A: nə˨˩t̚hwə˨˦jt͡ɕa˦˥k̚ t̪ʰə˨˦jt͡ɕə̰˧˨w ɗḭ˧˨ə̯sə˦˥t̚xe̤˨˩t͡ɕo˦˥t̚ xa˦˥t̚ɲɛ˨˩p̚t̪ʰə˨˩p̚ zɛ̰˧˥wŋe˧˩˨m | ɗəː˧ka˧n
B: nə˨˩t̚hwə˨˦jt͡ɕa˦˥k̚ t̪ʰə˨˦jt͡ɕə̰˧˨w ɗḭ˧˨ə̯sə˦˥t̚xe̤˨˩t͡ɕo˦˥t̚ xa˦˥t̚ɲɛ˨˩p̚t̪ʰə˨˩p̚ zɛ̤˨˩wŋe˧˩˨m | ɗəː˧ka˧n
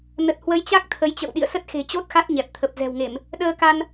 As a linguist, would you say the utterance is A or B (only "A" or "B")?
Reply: B